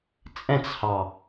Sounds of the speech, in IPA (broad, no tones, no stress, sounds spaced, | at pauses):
t͡sʼ ɛ̃ t͡s h ɑ